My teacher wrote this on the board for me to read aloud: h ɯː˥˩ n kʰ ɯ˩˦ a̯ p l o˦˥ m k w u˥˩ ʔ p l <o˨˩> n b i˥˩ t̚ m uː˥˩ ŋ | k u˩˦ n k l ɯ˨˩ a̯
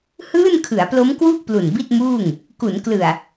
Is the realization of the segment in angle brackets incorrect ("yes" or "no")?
yes